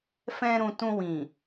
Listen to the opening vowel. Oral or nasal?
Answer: nasal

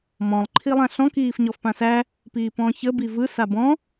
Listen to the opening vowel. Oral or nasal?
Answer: nasal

